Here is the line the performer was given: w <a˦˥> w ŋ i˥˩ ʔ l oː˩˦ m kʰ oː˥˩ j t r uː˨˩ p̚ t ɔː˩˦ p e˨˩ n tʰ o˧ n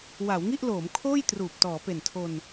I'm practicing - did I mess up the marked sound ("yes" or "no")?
yes